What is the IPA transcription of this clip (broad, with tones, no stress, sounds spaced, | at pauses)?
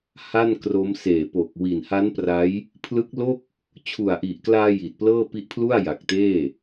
h a˥˩ n k r o˦˥ m s eː˨˩ p o˨˩ k̚ w i˨˩ n h a˦˥ n p r a˦˥ j | pʰ l ɯ˦˥ k̚ l o˥˩ k̚ | t͡ɕʰ u˨˩ a̯ ʔ i˨˩ ʔ k l aː˧ j i˨˩ t̚ p l ɤː˥˩ p i˦˥ ʔ pʰ l u˥˩ a̯ j a˨˩ k̚ t eː˥˩